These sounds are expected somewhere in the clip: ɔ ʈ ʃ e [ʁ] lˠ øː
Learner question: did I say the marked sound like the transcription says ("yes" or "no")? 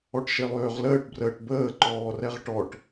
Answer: no